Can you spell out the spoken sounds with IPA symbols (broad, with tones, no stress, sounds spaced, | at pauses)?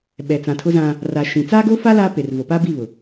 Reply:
ɓ ɛ˨ t͡s ã˨ tʰ ʊ˦ z ã˦ | r a˨ ʃ ĩ˨ t͡s aː˦ ɡ o˦ f a˦ l aː˦ p e˨ r v o˨ p a˦ b i˦˨ β ʊ˨